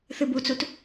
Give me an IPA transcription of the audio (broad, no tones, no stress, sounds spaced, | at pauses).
θ ɨ b u t͡s u t